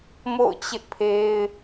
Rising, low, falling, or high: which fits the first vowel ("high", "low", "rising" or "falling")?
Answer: falling